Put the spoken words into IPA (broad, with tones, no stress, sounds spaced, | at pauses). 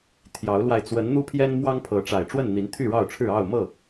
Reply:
t̪ʰ j ɑ˨˦ ʊ̯ l w a˧ ɪ̯ t͡s w ə˨˦ n n̪ u˦ pʰ j ɛ˦ n m w ɑ˦ ŋ pʰ ɤ˨˦ ʈ͡ʂ a˨˩ ɪ̯ ʈ͡ʂ w ə˥˨ n n̪ i˨˦ n t̪ʰ y˥˨ ɻ ɑ˥˨ ʊ̯ ʈ͡ʂʰ ɻ̩˥˨ ɑ˥˨ ʊ̯ m ɤ˥˨